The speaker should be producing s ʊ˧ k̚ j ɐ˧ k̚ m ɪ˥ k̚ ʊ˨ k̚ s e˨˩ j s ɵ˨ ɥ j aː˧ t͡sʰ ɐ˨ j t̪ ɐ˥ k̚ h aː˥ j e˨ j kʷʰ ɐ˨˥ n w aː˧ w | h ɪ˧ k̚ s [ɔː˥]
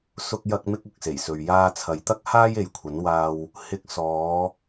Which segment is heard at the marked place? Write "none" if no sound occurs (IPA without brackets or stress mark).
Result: ɔː˨˧